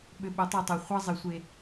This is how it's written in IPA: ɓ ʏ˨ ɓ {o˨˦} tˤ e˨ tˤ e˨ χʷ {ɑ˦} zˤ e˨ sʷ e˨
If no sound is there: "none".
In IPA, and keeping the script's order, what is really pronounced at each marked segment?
o˨˦, ɑ˦

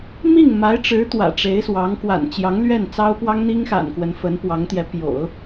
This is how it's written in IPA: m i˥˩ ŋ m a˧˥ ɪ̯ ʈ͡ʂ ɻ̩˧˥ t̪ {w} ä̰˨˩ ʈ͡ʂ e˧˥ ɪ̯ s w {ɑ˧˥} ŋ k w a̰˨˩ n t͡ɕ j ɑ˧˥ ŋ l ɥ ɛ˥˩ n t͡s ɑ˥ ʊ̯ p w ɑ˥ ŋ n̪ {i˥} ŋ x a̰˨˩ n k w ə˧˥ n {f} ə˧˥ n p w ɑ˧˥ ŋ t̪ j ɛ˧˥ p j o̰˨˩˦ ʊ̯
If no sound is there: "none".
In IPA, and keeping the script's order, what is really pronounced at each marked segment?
w, ɑ˧˥, i˥, f

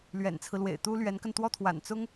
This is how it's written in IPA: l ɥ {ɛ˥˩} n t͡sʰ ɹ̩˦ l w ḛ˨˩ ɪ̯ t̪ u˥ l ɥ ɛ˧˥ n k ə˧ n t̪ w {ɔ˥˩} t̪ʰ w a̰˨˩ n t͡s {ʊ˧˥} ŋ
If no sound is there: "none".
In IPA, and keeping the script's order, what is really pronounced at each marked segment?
ɛ̰˨˩, ɔ˥˩, ʊ˥

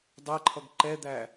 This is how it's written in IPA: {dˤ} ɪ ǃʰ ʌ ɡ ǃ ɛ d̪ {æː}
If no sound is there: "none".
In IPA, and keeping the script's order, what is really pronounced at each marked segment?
dˤ, æ

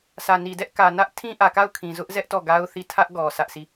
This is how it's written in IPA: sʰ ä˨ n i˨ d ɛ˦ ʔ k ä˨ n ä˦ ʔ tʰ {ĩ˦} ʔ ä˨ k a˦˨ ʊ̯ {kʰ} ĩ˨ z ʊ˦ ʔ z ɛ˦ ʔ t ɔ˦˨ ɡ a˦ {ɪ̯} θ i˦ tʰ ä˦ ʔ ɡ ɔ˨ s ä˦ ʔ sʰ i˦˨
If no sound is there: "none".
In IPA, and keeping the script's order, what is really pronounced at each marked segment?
ĩ˦, kʰ, ʊ̯

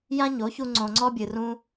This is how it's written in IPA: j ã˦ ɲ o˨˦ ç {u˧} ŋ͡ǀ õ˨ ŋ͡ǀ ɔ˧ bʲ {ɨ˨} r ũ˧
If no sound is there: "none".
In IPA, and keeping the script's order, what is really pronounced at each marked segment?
u˧, ɨ˨

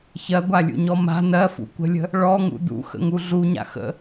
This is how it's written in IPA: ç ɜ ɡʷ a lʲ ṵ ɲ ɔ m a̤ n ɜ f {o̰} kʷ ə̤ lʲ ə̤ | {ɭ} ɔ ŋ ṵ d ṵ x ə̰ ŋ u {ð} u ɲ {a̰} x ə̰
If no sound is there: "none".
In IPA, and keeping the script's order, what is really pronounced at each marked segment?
ṵ, ɭ, ɮ, a̰

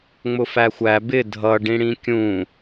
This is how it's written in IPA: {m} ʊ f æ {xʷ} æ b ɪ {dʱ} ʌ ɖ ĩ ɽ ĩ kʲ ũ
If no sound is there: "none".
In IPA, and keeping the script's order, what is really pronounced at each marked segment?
ŋ͡m, xʷ, dʱ

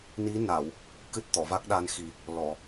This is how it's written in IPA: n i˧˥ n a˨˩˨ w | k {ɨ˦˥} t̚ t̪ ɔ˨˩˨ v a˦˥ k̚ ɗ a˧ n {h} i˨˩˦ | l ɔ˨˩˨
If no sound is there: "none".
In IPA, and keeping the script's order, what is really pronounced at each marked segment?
ɨ˦˥, x

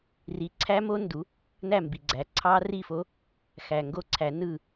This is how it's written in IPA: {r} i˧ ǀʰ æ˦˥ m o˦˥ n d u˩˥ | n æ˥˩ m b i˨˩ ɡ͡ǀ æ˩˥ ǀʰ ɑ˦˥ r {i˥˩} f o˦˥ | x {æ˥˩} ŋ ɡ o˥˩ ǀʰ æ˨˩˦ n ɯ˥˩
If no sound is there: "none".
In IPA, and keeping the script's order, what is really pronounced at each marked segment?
r, i˥˩, æ˨˩

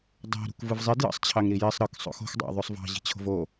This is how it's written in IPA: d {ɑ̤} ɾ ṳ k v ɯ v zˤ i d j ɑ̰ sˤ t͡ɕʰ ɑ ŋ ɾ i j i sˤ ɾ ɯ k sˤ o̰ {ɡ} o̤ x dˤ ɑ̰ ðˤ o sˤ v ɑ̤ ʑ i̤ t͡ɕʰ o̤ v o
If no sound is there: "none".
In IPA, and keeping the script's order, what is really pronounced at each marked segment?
ɑ̤, x

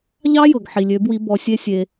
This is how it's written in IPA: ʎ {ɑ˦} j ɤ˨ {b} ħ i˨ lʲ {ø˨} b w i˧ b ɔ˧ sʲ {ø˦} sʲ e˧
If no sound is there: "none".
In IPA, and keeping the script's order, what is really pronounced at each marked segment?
ɑ˦, ɡ, ø˨˦, e˦

